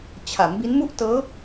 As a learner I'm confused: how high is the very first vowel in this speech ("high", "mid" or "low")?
low